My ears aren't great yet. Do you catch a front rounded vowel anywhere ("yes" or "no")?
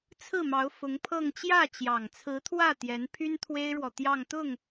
yes